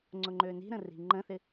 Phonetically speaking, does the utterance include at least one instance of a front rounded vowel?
yes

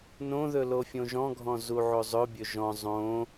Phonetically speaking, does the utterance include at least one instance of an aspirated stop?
no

